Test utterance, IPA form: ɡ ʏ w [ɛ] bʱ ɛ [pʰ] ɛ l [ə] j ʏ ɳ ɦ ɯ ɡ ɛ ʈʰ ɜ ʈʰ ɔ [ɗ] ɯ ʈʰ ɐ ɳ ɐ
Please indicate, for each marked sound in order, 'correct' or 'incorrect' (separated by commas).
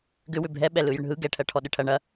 incorrect, incorrect, incorrect, correct